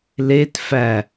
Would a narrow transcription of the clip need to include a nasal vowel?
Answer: no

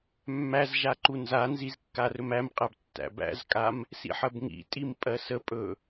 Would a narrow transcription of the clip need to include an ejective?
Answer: yes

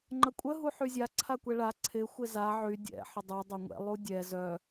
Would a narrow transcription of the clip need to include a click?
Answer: yes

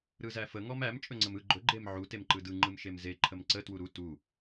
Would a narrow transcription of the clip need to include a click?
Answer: yes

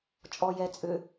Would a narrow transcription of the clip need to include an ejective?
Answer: yes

